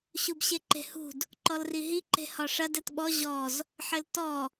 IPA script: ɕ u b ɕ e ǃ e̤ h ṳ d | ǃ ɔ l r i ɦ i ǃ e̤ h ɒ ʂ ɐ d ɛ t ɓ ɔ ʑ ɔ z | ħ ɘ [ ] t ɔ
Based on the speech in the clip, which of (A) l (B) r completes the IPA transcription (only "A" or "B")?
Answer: A